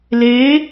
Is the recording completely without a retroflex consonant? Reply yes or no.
yes